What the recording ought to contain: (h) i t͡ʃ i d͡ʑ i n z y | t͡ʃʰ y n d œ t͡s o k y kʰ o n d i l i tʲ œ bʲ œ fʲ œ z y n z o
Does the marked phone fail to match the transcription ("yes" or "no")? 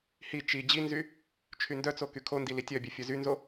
no